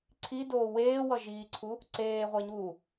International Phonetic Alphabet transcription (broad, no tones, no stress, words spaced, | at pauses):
ǀʰidoː weːwʌʒiːǀʰu | ǀeːʁʷeɲuː